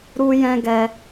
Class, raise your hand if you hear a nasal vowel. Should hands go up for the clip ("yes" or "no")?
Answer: yes